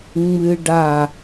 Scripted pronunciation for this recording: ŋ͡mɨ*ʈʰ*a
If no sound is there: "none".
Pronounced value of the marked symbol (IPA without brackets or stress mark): ɖ